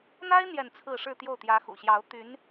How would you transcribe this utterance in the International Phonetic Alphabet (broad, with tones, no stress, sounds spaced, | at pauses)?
n̪ a˥ ɪ̯ n̪ j ɛ˥˧ n t͡sʰ ɹ̩˥˧ ʂ ɻ̩˥˧ t̪ j o˥˩ ʊ̯ t̪ j ä˧˥ x ṵ˨˩ ɕ j ɑ˧˥ ʊ̯ t̪ y˧˥ n